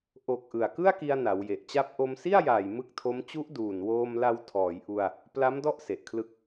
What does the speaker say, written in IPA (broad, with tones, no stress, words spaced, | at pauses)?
ʔo˨˩k̚ ʔɯ˨˩a̯kɯ˥˩a̯ki˧a̯ na˩˦wje˨˩ʔt͡ɕa˥˩p̚ ʔo˧msi˥˩a̯jaː˨˩j mɯ˦˥k̚tʰo˦˥m t͡ɕu˦˥ʔduː˨˩nwoː˧mla˧w tʰɔː˩˦jʔu˧a̯ | pla˦˥mdɔ˥˩ʔ se˨˩ʔkʰlɯ˦˥k̚